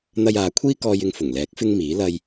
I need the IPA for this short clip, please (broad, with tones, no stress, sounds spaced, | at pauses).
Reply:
n̪ ɐ˧ j aː˨˧ kʷʰ iː˥ k ɔː˧ j ɪ˧ ŋ f ʊ˨˩ ŋ l ɛː˨˥ k̚ f ɪ˥ ŋ m iː˨˥ l ɐ˧ j